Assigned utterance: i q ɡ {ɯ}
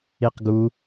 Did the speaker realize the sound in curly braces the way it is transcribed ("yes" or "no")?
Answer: no